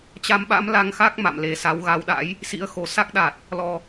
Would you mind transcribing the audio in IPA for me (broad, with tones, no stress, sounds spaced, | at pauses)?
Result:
t͡ɕ a˧ m ɓ a̰˧˥ m l a˧ ŋ x a˦˥ k̚ m a̰˧˨ m l e˨˩ s a˨˦ w ɣ a˨˦ w ɗ a̰˧˥ j | s ḭ˧˥ ə̯ x o˨˩ s a˦˥ k̚ ɗ a˨˩ t̚ | l ɔ˨˩